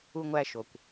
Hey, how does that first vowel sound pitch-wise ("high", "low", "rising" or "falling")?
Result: high